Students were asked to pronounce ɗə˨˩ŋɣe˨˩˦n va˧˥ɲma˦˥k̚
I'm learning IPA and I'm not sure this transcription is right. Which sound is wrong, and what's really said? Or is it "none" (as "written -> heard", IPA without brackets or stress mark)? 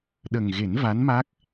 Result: ɲ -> n